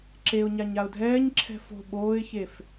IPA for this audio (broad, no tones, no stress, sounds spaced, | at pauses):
ǁ e ʊ̯ ɲ a ɲ a ʊ̯ dʱ ɛː ɲ ǁʰ ɛ̤ f o̤ ɓ oː ɪ̯ ç e f